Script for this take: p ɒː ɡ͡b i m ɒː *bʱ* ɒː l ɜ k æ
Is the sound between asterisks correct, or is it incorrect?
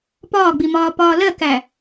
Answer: incorrect